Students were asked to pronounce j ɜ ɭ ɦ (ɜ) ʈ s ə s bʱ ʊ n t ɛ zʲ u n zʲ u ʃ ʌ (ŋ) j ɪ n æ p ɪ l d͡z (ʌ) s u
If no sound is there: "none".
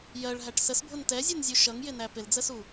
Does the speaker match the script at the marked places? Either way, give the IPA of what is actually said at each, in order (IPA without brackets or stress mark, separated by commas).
æ, ŋ, ə